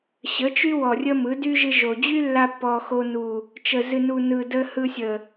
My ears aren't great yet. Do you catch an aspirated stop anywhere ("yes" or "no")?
no